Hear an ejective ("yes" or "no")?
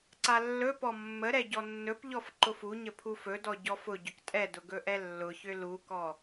yes